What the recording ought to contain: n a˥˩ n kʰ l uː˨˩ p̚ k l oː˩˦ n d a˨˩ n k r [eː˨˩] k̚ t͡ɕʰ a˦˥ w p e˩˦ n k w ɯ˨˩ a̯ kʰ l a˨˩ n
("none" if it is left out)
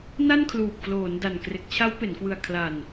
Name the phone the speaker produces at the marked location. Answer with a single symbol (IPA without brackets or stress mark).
e˨˩